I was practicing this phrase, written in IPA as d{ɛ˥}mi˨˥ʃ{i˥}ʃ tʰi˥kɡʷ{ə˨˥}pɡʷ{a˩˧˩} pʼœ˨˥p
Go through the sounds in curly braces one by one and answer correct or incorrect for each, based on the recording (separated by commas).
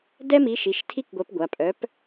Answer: correct, incorrect, incorrect, correct